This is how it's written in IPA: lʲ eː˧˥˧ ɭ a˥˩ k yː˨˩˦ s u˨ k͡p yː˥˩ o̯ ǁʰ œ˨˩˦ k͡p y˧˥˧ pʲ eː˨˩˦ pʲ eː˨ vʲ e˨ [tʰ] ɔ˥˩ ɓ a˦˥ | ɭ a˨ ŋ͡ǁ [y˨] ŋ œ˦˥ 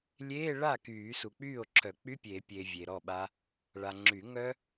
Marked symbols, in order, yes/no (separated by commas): no, no